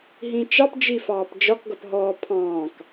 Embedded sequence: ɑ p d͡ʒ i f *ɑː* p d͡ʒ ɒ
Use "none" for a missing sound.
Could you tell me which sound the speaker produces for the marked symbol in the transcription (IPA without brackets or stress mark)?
ɑː